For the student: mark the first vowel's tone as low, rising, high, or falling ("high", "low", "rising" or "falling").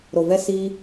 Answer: low